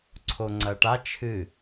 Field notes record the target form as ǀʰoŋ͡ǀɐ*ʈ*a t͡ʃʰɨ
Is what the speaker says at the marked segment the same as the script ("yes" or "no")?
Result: yes